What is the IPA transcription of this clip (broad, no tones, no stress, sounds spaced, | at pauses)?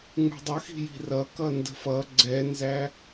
ŋ͡m ṳ dˤ ə x i̤ j i̤ r ʌ k ʌ n d ə̤ f ʌ ɡ͡ǀ ɛ n z æ